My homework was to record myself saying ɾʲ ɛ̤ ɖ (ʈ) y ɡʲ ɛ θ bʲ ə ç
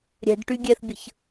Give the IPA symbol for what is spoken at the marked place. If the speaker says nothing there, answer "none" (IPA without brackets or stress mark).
ʈ